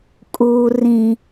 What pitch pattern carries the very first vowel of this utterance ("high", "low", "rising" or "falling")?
low